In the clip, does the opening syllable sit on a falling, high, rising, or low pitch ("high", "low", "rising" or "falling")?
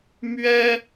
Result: high